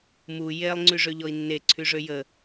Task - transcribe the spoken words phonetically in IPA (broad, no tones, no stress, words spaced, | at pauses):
mu jelˠ ŋ͡ǀyʐøʎɔi̯nːe ǀʰyʐøjə